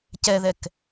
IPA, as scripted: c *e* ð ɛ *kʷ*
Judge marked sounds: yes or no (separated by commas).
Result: no, no